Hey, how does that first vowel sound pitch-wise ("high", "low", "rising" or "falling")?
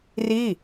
falling